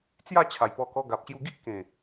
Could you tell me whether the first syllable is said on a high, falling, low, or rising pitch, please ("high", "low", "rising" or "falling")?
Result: falling